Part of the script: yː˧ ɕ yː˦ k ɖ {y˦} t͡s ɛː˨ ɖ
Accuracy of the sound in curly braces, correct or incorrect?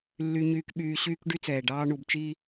correct